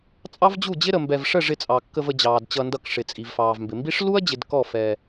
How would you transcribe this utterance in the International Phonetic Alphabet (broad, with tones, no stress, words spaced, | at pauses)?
t͡sʼɑ˦vd͡ʑu˦˨d͡ʑɪ˦ɾə˨ mbɛ˧v ʂə˦˨ʐɪ˧t͡sʼɑ˨ kːə˧və˧d͡ʑɑː˨d t͡ɕʌ˧ndʌ˧kʂɪ˨ t͡sʼi˨vfɑː˨vmbɪ˨mbi˦ʂ lu˦ɐ̯d͡ʑɪ˨d kɔ˦˨fɛ˧